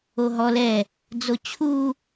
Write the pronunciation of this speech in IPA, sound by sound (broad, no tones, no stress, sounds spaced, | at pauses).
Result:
o ɦ ɔ l ɛ | d͡z o t͡ɕʰ u